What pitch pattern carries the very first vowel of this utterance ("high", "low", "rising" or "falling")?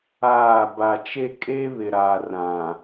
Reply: falling